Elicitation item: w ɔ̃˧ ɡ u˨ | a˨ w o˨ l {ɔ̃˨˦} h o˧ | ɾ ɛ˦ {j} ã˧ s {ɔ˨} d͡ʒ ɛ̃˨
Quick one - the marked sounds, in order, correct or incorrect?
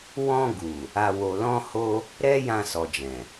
incorrect: ɔ̃˧, correct, correct

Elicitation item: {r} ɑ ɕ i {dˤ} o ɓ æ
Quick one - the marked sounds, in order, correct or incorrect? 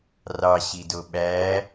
correct, incorrect: d

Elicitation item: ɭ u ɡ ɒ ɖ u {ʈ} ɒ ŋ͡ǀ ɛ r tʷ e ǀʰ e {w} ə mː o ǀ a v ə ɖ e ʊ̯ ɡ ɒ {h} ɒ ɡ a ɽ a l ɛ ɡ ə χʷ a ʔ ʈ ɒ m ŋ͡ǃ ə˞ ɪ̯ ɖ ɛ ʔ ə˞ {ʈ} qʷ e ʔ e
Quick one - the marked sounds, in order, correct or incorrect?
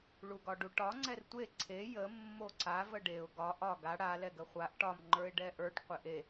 correct, incorrect: j, incorrect: ʔ, correct

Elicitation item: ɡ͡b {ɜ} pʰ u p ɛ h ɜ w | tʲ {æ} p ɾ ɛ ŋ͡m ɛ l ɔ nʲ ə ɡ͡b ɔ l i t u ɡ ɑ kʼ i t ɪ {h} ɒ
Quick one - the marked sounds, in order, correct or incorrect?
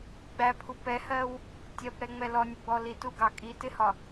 incorrect: æ, incorrect: ɜ, correct

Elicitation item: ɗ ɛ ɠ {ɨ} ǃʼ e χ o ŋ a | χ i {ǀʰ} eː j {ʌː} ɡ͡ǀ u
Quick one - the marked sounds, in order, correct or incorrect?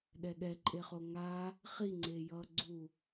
incorrect: ɛ, incorrect: ŋ͡ǀ, correct

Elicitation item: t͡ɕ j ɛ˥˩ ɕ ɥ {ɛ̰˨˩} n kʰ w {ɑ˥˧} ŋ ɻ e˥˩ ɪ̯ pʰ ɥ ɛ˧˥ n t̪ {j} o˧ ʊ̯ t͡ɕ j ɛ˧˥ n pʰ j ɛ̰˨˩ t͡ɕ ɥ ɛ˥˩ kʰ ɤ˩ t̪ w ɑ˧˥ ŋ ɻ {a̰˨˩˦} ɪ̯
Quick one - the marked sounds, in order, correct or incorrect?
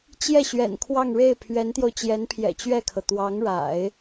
correct, correct, correct, correct

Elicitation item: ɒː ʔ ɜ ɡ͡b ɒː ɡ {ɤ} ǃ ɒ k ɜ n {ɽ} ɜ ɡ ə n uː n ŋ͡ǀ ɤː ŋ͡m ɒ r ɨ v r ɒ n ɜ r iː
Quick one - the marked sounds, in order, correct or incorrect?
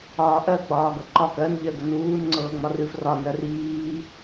correct, incorrect: ʎ

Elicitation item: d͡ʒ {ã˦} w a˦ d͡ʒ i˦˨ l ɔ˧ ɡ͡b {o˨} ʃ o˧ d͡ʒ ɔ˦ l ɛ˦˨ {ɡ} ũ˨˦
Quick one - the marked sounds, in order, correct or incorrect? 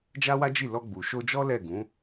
incorrect: a˦, incorrect: u˨, correct

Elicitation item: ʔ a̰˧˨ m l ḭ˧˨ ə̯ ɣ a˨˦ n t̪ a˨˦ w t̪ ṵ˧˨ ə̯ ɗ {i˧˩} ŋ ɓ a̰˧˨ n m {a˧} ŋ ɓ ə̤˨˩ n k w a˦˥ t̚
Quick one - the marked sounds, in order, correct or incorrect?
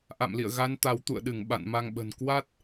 incorrect: ɨ˧˩, correct

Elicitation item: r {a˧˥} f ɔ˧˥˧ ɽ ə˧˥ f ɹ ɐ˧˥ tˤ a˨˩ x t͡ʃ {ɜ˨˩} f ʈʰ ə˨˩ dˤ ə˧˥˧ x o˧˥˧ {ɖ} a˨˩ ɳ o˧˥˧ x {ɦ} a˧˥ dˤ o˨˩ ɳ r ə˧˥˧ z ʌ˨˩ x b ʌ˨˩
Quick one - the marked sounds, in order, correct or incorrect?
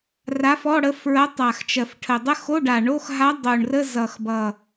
correct, correct, correct, correct

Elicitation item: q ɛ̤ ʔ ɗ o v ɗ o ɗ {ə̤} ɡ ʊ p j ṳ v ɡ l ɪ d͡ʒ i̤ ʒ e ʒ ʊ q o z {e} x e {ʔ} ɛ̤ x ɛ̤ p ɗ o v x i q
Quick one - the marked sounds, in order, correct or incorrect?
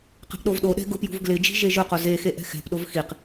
incorrect: ɛ̤, correct, correct

